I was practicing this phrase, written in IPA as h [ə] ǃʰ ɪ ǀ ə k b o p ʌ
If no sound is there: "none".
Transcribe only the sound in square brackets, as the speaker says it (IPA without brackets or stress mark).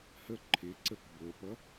ə